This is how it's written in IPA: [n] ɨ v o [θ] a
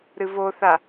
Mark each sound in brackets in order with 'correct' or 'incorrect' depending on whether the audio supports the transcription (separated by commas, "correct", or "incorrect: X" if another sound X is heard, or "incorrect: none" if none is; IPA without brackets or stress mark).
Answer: incorrect: ɾ, correct